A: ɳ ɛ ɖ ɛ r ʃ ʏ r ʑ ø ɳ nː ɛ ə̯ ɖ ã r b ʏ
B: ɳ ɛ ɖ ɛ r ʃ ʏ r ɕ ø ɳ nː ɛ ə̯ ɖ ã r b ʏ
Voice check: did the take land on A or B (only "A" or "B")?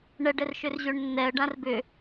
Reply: A